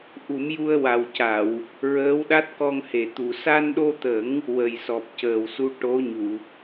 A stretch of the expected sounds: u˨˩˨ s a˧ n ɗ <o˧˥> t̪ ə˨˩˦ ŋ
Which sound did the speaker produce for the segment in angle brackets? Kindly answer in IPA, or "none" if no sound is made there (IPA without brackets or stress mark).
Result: o˧